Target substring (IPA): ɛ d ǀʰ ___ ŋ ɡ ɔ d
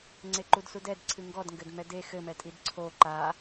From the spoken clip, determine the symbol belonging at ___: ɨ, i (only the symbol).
ɨ